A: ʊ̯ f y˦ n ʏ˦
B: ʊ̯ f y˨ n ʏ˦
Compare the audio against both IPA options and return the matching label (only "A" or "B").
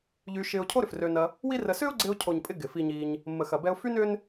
A